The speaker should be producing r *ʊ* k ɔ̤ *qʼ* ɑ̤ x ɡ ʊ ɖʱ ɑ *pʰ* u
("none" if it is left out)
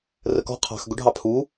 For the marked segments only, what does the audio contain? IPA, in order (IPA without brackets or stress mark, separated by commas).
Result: ə, qʰ, pʰ